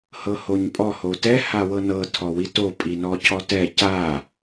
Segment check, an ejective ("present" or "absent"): present